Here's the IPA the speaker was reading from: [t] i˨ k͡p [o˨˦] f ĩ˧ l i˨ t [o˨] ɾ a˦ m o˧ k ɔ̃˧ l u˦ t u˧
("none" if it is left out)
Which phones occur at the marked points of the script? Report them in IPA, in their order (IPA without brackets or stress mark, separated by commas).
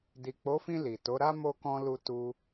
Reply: d, o˨˦, o˨˦